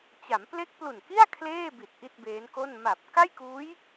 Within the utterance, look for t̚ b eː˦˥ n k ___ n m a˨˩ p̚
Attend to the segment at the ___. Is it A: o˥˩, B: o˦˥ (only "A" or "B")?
A